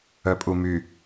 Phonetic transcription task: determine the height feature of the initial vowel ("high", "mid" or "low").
mid